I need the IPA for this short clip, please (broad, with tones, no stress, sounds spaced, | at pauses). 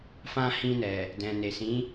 f ã˧ h ĩ˧ n ɛ˨ | d ɛ̃˨ n e˨ s ĩ˨˦